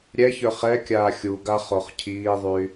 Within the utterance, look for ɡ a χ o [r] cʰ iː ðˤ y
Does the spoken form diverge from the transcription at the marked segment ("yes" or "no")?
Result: yes